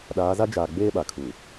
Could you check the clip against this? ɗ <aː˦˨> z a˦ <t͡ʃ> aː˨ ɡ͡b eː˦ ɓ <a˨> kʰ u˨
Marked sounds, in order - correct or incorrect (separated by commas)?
incorrect, incorrect, correct